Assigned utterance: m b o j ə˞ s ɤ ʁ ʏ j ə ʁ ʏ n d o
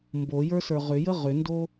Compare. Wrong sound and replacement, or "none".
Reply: ɤ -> ə˞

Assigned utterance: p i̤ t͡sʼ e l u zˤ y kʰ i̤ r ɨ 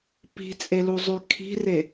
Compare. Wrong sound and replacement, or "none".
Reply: ɨ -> e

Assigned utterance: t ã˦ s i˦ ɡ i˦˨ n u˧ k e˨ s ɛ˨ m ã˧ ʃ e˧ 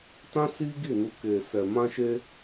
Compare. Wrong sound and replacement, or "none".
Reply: none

